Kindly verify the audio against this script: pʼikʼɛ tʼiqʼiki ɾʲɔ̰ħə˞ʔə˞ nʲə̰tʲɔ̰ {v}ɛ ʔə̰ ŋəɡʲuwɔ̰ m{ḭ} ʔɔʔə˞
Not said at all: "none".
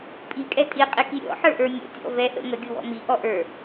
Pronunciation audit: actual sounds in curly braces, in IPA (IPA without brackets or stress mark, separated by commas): v, i